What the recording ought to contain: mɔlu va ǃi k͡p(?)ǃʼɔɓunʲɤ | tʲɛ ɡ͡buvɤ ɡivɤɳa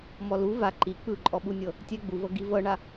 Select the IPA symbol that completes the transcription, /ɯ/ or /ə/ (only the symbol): ɯ